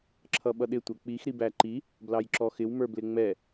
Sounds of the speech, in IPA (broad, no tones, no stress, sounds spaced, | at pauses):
ǁʰ ʌ ɓ ʌ ɗ ɪ tʷ ɛ k͡p i x ɾ i b æ ǃ i | b l ɑ j ǁ ɔ x ɪ w m ə˞ b l ɪ ŋ͡m ɛ